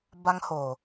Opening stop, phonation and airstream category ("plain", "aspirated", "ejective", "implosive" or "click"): plain